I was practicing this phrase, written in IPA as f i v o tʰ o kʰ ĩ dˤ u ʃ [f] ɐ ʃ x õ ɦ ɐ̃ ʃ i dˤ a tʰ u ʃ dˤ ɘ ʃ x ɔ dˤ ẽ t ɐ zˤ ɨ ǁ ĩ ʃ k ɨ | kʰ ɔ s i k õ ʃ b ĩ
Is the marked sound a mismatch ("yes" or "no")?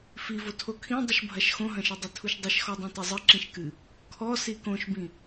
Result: yes